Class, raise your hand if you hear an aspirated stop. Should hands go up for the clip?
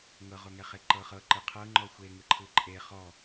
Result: yes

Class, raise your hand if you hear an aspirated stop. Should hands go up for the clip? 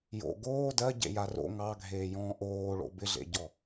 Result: no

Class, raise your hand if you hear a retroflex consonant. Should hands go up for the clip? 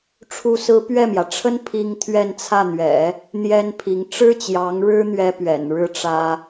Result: yes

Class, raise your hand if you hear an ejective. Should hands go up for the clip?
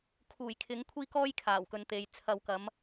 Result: no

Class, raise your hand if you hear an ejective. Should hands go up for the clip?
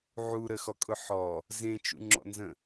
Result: yes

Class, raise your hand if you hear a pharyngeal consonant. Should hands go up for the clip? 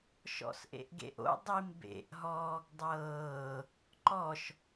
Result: no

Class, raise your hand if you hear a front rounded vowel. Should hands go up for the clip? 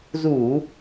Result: no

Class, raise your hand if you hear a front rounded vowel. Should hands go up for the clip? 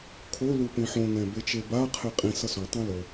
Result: no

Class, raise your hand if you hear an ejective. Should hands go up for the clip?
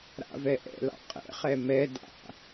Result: yes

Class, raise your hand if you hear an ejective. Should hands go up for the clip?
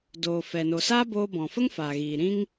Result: no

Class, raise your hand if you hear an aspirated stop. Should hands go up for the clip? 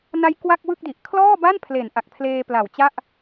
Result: yes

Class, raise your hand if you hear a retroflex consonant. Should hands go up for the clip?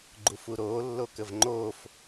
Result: no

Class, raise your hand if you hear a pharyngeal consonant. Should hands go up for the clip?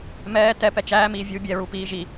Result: no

